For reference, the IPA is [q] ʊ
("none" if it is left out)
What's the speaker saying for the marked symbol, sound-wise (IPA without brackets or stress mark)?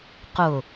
q